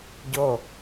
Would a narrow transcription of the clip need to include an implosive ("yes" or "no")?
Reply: no